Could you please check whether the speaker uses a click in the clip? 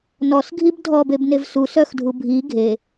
no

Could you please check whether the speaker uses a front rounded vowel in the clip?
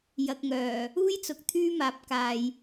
yes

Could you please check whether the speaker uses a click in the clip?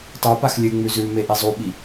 no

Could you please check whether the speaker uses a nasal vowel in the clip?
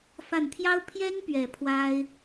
no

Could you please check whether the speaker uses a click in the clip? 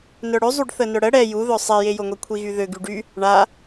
no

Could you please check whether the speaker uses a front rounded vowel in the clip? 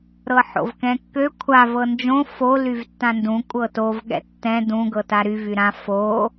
yes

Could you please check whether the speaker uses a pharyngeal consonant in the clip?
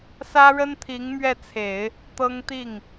no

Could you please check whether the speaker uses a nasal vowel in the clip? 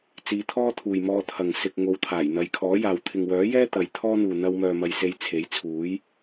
no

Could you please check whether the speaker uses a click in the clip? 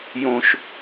no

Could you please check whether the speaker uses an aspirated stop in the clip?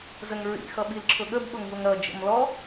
yes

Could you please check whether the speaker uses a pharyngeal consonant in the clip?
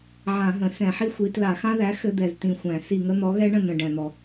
yes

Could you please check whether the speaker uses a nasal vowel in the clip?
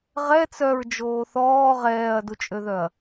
no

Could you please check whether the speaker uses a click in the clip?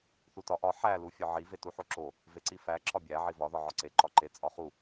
yes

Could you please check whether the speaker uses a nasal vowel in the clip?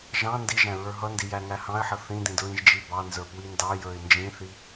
yes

